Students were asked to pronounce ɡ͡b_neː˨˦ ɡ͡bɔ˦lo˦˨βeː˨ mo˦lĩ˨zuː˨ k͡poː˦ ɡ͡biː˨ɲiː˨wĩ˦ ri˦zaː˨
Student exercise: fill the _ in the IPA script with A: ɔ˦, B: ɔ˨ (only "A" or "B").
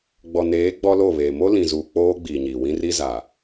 B